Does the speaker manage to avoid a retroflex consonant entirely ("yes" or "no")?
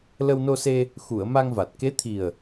yes